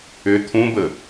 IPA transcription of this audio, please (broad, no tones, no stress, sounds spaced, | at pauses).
ʏ t̪ʰ ũ b ə